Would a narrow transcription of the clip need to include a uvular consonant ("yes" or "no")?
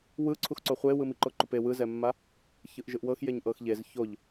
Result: yes